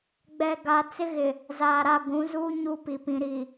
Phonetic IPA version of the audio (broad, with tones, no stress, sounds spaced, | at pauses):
ɡ͡b ɛ˨ ɡ a˨ t͡s ɪ˦ ɣ ɪ˨ | z aː˨ ɾ a˦˨ ɡʷ ũ˨˦ z uː˦ ɲ u˦ p i˨ p ĩ˨ ɾ i˨